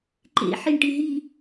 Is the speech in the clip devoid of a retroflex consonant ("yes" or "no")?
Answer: no